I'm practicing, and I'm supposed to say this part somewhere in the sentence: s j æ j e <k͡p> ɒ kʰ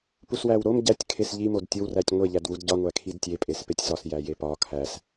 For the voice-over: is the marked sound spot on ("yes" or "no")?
no